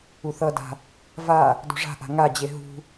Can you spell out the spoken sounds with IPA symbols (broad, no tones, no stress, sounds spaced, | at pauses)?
u θ ʌ d a̤ | v a | d o̤ ʐ a̤ ʔ a̤ ŋ a d͡ʑ e ɦ ṳ